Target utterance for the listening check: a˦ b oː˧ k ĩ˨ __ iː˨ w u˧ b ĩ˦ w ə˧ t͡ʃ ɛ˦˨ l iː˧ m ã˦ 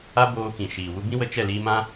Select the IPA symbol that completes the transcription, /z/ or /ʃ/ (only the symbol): ʃ